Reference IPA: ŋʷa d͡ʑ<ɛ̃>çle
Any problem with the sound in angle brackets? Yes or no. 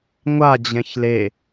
no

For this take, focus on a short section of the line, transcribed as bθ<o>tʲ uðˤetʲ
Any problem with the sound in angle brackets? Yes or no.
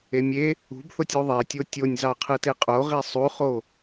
no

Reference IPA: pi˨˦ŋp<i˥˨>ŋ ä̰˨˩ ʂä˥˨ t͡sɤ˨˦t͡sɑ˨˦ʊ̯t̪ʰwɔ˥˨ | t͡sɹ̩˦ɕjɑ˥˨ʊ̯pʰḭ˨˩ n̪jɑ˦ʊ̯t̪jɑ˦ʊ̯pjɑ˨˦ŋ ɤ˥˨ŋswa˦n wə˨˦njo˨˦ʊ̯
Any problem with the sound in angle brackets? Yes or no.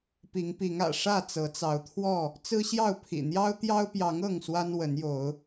yes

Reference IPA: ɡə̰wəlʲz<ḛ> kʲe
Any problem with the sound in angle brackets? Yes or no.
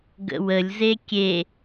yes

